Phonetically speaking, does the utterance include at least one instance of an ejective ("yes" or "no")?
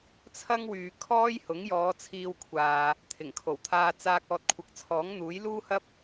no